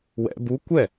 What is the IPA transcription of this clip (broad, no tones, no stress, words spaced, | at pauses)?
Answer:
wɛ̰ bu kʷɛ